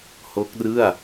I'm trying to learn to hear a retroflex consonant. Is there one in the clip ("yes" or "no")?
no